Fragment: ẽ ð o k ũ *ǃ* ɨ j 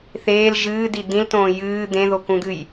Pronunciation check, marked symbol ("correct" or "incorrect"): incorrect